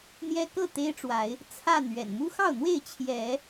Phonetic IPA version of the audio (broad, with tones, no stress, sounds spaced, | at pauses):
n̪ j ɛ˦ k ɤ˥˨ t̪ e˦ ɪ̯ ʈ͡ʂ w a˨˦ ɪ̯ | t͡sʰ a˥˨ n ɥ ɛ̰˨˩ n m u˦ x ɑ˥˨ ʊ̯ n̪ w e˥˨ ɪ̯ t͡ɕʰ j ɛ˨˦